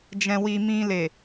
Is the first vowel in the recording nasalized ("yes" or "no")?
yes